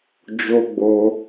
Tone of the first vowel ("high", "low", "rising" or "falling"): high